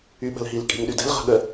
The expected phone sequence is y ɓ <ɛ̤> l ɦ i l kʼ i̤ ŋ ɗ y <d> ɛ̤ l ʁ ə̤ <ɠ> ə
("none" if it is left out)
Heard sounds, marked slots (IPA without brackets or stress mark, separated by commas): ə̤, d, ɠ